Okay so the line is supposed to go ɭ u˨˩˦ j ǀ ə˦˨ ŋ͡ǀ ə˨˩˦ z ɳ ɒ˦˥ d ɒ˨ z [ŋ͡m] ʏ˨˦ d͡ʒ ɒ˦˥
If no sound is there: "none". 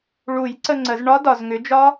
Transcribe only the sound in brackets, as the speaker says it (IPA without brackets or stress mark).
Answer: ŋ